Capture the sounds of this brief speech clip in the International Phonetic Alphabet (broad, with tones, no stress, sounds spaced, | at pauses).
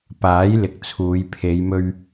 p aː˨˥ j l ɪ˨ k̚ t͡sʰ uː˨˧ j pʰ e˨˧ j m ɵ˧ ɥ